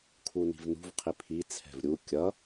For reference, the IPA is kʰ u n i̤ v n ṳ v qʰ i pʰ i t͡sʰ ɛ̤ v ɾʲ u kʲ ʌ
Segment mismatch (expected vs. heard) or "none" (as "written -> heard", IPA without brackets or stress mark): none